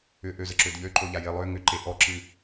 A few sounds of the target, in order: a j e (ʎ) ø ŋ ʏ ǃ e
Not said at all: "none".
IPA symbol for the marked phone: lˠ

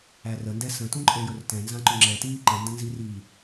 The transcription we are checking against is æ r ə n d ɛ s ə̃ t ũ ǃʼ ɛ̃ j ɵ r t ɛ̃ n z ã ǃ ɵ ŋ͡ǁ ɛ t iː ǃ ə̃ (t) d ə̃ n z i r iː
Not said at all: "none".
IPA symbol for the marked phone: n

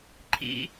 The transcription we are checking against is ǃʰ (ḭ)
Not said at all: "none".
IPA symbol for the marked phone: ḭ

